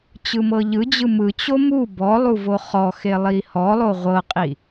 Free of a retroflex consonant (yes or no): yes